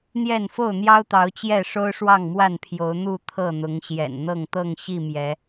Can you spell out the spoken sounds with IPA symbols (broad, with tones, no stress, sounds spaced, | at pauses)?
n̪ j ɛ˥˨ n f o˥˨ ʊ̯ n̪ j ɑ˦ ʊ̯ t̪ ɑ˨˦ ʊ̯ t͡ɕ j ɛ˥˨ ʂ o˦ ʊ̯ ʂ w ɑ˥˨ ŋ m w a˥˨ n pʰ j o˨˦ ʊ̯ n̪ u˥˨ t̪ʰ ɤ˥˨ n̪ ʊ˨˦ ŋ ɕ j ɛ̰˨˩ n n̪ ɤ˥˨ ŋ t̪ ɤ˥˨ ŋ ɕ i˥˨ m j ɛ˨˦